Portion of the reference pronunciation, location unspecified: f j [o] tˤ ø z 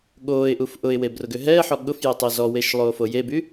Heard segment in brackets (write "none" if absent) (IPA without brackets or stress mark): o